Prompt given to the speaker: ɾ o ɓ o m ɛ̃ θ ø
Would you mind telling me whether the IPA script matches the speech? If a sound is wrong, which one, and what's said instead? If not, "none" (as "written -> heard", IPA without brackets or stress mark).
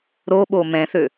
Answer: none